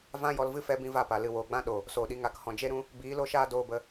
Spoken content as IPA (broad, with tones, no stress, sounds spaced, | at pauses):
v ã˦ j ɔ˧ l v ɨ˦ f ɛ˧ b ĩ˦ v a˦˨ p a˨ l ɨ˨ w oː˨ ɡ͡b ã˦ ɗ o˨ | s oː˨ ɗ i˧ ŋ a˨˦ k h ɔ̃˨ d͡ʒ e˦ ɾ ũ˦ | b iː˨˦ l o˦ ʃ aː˦ d oː˧ b ə˧